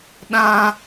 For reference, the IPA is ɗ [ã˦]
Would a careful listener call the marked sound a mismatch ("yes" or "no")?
no